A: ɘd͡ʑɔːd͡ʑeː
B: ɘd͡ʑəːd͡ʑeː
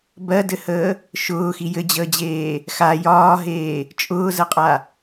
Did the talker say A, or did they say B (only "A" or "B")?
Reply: B